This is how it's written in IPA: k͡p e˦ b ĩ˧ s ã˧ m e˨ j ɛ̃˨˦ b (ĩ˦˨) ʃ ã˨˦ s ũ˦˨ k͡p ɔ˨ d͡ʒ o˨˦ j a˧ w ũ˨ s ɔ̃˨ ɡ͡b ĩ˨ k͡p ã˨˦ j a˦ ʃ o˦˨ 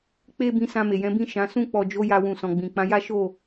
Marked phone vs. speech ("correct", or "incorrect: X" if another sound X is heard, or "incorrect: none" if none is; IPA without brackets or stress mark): correct